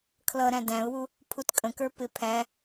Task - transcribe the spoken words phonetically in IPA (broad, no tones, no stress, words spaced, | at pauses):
kʰlʌɾæ̃ dæ̃ʊ̯wu | pʰutkʼə̃kə˞ pɪ pʰæ